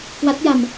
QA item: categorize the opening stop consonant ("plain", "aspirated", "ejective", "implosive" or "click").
plain